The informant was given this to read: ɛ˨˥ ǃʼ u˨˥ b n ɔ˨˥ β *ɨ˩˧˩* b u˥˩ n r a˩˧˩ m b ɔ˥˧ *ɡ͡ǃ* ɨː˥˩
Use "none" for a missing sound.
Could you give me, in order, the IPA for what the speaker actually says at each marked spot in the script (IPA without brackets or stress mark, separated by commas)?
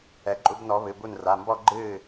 ɨ˩˧˩, ɡ͡ǃ